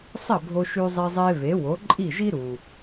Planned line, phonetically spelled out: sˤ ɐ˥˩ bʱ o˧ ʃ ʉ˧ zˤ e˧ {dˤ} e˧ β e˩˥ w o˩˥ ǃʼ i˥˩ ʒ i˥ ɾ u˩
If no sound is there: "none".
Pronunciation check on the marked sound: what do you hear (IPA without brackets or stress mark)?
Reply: zˤ